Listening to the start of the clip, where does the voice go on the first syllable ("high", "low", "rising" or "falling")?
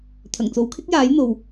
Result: low